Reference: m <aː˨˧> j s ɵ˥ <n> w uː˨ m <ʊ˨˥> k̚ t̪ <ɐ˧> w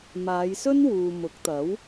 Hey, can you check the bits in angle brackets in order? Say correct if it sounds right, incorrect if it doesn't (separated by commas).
correct, correct, correct, incorrect